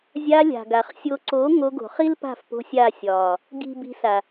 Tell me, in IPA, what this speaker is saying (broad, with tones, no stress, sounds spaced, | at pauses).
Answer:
zʲ aː˧ lʲ a̤˨ ɡ a˨ χ sʲ o˨ ǀ oː˨˦ ŋ o˧ ɡ o̤˨ χ i˦ l p a̤˦˨ f p o̤˧ sʲ a˦˨ sʲ ɒː˨ | ɡ i̤˨ b i̤˧ s a˨